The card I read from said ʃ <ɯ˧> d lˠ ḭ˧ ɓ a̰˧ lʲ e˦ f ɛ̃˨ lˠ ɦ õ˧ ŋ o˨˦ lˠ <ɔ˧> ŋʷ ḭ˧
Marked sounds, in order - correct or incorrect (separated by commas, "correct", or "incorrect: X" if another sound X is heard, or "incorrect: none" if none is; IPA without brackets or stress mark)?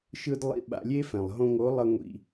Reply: correct, incorrect: ʌ˧